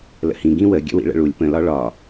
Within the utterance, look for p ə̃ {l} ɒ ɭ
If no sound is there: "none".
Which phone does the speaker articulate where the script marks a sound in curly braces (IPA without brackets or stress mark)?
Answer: l